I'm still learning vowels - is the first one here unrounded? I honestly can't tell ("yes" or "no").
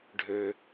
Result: no